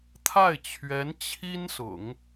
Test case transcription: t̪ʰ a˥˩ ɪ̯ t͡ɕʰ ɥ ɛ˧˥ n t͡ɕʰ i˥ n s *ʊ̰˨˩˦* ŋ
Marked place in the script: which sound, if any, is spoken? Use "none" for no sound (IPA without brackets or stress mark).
ʊ̰˨˩˦